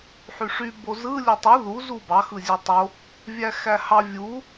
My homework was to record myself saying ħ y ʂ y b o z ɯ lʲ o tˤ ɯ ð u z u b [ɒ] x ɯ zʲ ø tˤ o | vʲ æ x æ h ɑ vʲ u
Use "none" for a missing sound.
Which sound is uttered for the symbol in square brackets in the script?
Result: ɑ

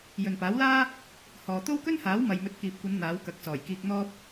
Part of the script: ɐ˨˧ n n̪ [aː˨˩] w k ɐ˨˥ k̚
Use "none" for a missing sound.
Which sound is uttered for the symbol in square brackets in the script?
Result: aː˨˥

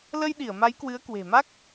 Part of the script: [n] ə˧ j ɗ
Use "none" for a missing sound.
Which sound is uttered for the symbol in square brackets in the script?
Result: l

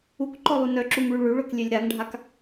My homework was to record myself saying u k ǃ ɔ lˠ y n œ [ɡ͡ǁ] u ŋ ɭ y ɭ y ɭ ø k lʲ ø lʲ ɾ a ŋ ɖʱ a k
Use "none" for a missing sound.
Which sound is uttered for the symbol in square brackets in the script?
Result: ǁ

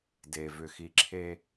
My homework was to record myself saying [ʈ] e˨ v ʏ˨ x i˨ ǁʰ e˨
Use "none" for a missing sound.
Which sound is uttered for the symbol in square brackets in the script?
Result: d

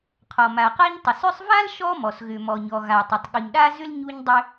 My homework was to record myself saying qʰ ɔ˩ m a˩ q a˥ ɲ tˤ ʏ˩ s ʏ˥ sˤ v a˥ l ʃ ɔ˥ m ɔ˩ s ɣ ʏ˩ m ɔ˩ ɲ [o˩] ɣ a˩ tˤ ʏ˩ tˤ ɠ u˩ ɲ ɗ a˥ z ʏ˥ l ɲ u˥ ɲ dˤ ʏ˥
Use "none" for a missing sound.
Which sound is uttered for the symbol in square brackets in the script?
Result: ɔ˩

